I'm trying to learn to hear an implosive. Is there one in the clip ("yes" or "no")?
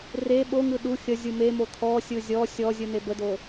yes